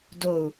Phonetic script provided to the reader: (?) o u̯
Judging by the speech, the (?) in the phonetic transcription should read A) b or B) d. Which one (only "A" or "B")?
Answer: B